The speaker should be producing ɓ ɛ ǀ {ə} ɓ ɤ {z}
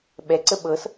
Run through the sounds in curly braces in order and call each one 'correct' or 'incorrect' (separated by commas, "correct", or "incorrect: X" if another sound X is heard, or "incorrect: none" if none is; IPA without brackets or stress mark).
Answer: correct, incorrect: s